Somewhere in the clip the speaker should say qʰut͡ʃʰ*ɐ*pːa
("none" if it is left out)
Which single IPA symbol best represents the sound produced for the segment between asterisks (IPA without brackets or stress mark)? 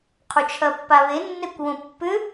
ɐ